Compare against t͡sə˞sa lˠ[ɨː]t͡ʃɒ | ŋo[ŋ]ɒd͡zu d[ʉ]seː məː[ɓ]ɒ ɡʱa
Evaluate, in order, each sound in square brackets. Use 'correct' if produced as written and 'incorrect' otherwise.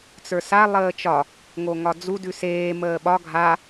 incorrect: əː, correct, correct, correct

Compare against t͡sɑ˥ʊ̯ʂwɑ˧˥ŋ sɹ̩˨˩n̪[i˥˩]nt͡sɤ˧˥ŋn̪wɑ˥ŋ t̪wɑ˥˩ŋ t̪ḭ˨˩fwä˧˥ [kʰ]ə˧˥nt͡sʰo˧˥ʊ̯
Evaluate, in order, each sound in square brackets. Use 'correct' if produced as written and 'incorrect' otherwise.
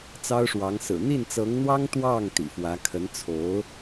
correct, correct

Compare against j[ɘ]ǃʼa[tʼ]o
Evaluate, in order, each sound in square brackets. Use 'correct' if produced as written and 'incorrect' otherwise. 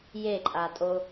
incorrect: e, correct

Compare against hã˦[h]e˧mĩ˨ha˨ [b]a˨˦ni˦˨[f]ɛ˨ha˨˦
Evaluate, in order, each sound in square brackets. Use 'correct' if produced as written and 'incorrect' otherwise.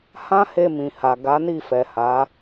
correct, incorrect: ɡ, correct

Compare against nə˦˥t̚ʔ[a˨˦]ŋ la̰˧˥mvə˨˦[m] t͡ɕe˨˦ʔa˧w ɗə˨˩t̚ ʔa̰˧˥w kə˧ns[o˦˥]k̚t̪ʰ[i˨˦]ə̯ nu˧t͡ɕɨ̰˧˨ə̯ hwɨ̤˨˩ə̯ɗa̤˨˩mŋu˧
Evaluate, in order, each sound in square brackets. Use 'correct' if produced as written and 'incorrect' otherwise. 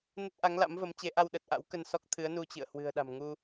correct, correct, incorrect: ɔ˦˥, incorrect: ɨ˨˦

